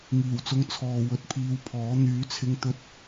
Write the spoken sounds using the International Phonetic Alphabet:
ŋ iː˨˩ w t͡s ʊ˧ ŋ t͡sʰ ɔː˨ w ɵ˨ t̚ pʰ iː˧ w pʰ ɔː˨˥ n̪ yː˨˥ t͡sʰ ɪ˧ ŋ t̪ ɵ˧ t̚

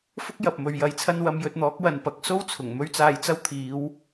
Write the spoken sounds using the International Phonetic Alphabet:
f ʊ˥ k̚ j ɐ˨ p̚ m ɵ˨ ɥ j ɐ˨ j t͡sʰ ɐ˧ n w ɐ˧ m j ɵ˧ t̚ n̪ ɔː˨˥ k̚ w ɐ˨ n p ɐ˨˥ k̚ s o˥ w t͡sʰ ʊ˨˩ ŋ m ɵ˥ ɥ t͡s aː˧ j t͡s ɐ˥ w t̪ʰ iː˨˧ w

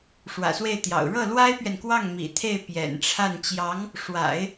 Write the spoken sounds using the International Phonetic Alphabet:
ʂ w ä̰˨˩ s w e˥˩ ɪ̯ t̪ j ɑ̰˨˩ ʊ̯ ɻ ɤ˥˩ l w a˥ ɪ̯ p ɥ ɛ˨ n k w ɑ˥˩ ŋ m ḭ˨˩ t̪ʰ e˥˩ ɪ̯ p j ɛ̰˨˩ n ʈ͡ʂʰ a˥˩ n t͡ɕ j ɑ˧˥ ŋ | ʂ w a̰˨˩˦ ɪ̯

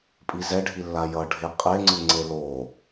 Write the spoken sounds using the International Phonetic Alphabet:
pʼ i z ɛ ɖʱ i lː a j ʌ ɖʱ e qʼ e ŋ͡ǀ ɯ ŋ͡ǀ e l o

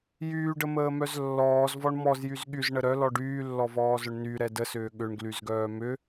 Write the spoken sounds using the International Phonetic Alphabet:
j yː ɖ ə m əː m œ z lː ɔː z v ɔ ɳ m ɔ z j y z ɠ y z ɳ ə ɾ œ l ɔ ɖ yː lː ɔ v ɔː z œ ɳ n y ɾ ɛ d ə s ʏː ɠ ʏ ɳ ɡ l y z ɡ œː m ʏ

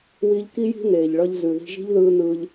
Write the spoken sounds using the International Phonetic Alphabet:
w i˧ ʎ k i˦ j i̤˦ n̪ eː˨ ʎ ɭ ʌ˧ ʎ z ʉ˨ ð i̤˧ ʒ i̤˦ ʎ ð ɯː˧ n̪ ɯː˧ ʎ

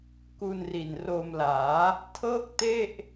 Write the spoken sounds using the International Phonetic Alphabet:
k u˧ n r i˨˩ n r o˧ m l aː˩˦ | tʰ ɤː˥˩ k̚ t e˥˩ ʔ

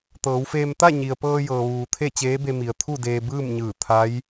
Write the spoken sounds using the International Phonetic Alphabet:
t̪ ɤː˩˧ w f eː˧ m t̪ a˥˨ ɲ i˩ ə̯ p ɤː˧ j ɤː˩ ʋ uː˩ t̪ʰ e˥˨ t͡ɕ eː˧˥ b e˧ m i˩ ə̯ t̪ʰ u˥˨ d eː˧ b ɯː˥˨ m ɲ ɯː˧˩ t̪ʰ a˧˥ j

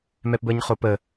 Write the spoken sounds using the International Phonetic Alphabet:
m ɛ p b əː ɲ χ o p ə

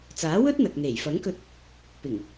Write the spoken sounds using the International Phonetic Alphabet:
t͡s aː˨˥ w ɵ˥ t̚ n̪ ɐ˨ k̚ n̪ e˨˩ j f ɐ˨˥ ŋ k ɵ˧ t̚ | p ɪ˨˩ ŋ

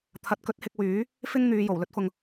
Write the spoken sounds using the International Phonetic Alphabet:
t̪ʰ ɐ˧ t̚ k ɵ˥ t̚ h ɪ˧ k̚ w yː˨˥ | f ɪ˥ ŋ n̪ yː˨˧ j o˨˩ w l ɵ˥ t̚ f ʊ˨ ŋ

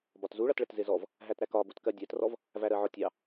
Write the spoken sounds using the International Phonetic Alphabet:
b ɒ t z u ɭ ʌ t ɭ ə t z ɪ z ɔ v | ɦ æ t ɾ æ k ɒ b u t k ɜ dʲ æ t r ɔ v | v æ ɾ ɜ ʕ ɔ tʲ ɑ

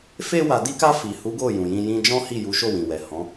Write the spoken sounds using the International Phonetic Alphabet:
f e˧ w a˨ d i˧ k a˧ f i˨ h u˨˦ ɡ o˦˨ j ũ˨ j ĩ˧ j ĩ˦ d͡ʒ ɔ̃˦ h i˦˨ j u˨˦ ʃ o˦˨ w ĩ˨ w ɛ˨ h ɔ̃˨˦

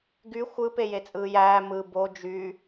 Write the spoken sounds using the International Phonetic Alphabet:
ɡ y xʷ ɯ p e j e t͡sʼ ɯː j æː m ɯ b o d͡ʒ y

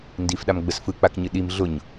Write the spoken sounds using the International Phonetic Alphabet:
n d i f ɗ a m ɡ͡b ə s f ɯ k͡p a k ɲ ɨ ɗ i m ɮ ʊ ɲ

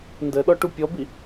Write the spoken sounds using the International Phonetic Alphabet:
n d ə ɗ ɔ ʈ u pʲ ɔ b i

